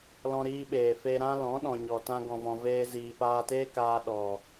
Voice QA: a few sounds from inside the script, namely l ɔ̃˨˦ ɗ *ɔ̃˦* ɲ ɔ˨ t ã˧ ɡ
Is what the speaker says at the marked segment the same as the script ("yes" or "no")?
no